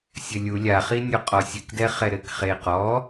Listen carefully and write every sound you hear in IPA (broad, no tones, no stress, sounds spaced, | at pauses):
sʲ ɘ lʲ u lʲ a χ i nʲ o qʼ ɔ sʲ ɨ k d ɛ χ ɛ ɾ ɘ k χ e q ɔ